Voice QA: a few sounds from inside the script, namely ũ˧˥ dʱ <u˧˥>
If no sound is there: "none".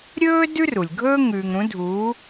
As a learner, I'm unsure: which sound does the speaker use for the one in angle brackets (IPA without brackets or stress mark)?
uː˧˥